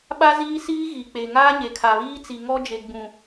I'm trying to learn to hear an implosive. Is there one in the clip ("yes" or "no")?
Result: yes